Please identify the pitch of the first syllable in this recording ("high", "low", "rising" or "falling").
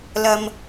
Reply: high